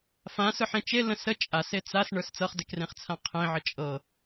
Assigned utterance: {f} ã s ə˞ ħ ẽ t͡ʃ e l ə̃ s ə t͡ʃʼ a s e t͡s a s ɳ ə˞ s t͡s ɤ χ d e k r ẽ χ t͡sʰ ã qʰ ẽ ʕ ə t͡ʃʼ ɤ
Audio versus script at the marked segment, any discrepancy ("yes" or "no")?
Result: no